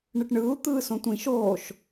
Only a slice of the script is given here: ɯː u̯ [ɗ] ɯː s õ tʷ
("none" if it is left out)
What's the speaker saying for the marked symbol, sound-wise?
t̪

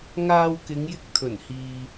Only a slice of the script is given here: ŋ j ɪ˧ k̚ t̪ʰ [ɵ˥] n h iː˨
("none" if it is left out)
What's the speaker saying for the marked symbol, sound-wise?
ɵ˨˩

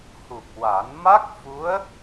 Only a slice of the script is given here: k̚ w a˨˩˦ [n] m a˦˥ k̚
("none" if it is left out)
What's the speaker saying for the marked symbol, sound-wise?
n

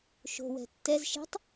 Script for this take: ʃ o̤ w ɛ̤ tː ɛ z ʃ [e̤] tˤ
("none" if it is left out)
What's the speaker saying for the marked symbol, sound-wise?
e̤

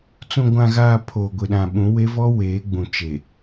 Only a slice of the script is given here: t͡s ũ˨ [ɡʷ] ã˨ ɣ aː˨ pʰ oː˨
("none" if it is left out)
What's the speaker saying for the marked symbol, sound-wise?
ɡʷ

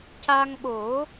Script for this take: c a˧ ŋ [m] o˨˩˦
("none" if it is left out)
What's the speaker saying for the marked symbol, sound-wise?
ɓ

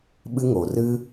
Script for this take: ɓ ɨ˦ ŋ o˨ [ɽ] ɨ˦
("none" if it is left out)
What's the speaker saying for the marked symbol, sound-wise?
r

